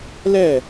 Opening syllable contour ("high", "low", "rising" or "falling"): falling